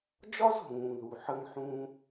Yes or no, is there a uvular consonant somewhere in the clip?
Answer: no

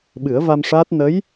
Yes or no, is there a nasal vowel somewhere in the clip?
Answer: no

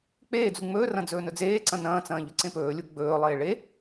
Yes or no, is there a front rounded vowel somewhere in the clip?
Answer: no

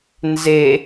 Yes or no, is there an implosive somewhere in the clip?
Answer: no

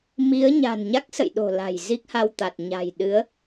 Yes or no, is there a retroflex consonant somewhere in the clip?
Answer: no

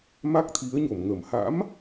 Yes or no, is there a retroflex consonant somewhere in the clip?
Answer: no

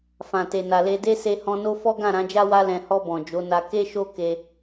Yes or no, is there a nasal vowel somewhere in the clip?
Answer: yes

